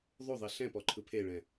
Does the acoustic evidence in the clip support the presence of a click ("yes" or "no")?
yes